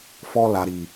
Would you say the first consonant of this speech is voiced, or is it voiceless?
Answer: voiceless